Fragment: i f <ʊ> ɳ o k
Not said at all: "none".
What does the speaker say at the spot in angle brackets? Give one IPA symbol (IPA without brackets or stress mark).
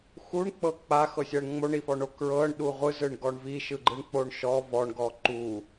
ɔ